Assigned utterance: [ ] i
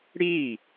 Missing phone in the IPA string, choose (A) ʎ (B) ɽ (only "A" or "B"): B